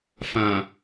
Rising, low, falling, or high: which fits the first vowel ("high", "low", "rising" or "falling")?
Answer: low